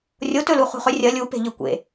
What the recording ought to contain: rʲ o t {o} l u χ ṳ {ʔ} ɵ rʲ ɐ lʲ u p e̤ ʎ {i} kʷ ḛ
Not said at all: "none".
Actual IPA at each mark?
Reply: ɵ, χ, ɨ

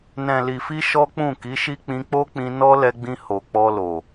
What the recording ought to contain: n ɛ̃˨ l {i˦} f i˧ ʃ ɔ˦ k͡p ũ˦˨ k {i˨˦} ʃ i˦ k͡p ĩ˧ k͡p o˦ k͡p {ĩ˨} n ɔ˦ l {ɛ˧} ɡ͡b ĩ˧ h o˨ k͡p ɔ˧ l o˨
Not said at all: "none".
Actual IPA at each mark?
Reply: i˨, i˨˦, ĩ˧, ɛ˧

